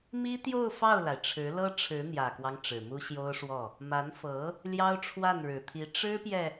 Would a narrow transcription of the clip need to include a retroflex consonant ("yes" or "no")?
yes